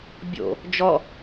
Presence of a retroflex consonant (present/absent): absent